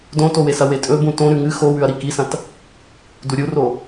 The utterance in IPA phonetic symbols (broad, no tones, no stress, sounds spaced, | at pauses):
d õ t o w e s ɐ w e tʼ ɵ b ũ t õ ɾ ʉ ŋ ɨ x o w ʉ ɐ̯ ɾ i k i s ɐ̃ t | d u ɾʲ u r o